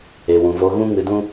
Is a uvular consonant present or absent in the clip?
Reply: absent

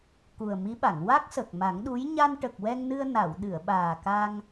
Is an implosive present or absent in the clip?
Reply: present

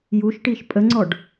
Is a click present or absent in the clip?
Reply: present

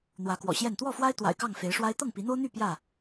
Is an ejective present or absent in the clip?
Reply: absent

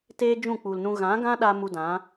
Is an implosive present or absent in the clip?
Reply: present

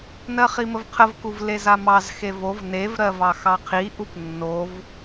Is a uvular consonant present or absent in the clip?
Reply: present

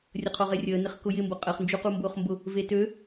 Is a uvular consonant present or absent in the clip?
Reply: present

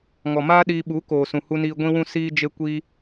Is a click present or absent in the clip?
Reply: absent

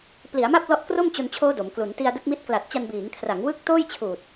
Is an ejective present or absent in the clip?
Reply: absent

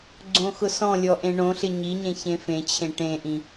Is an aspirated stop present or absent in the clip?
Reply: present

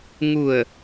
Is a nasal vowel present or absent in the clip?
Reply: absent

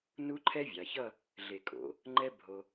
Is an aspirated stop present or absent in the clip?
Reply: present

